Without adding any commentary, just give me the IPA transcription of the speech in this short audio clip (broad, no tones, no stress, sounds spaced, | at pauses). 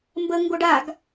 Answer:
m b ə ŋ ɡ o ɖ a ɡ